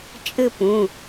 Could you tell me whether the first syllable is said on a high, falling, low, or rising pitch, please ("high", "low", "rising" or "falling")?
falling